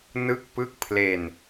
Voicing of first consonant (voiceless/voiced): voiced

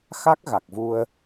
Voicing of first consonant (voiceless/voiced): voiceless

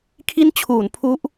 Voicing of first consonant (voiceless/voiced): voiceless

